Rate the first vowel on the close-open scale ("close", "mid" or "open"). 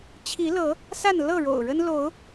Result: close